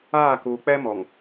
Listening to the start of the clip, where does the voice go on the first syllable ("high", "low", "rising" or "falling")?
falling